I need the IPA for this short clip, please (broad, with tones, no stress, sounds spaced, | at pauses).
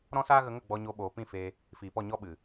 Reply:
ɾ ɔ̃˦ s aː˦ ɣ ə˧ ŋ ə˦˨ ɡ͡b ɔ˧ ɲ o˧ ɓ oː˨ p ĩ˦˨ f e˧ | f iː˨ p ɔ˦˨ ɲ ɔ˦ ɓ ɨ˨